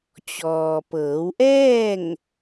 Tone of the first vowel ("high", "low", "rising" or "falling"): low